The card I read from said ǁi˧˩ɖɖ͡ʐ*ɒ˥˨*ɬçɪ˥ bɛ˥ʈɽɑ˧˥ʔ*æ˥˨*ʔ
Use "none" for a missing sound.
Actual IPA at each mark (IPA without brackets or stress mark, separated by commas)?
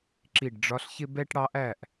ɒ˧˥, æ˥˨